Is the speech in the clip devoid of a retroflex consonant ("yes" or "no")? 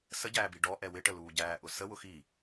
no